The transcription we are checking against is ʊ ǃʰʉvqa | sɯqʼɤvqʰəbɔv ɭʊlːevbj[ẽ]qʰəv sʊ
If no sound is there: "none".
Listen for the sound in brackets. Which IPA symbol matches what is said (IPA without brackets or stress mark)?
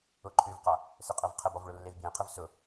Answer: ẽ